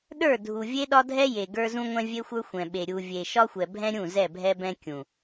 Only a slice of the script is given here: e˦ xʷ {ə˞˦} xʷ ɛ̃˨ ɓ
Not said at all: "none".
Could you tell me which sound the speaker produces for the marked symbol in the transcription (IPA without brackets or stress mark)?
ə˞˦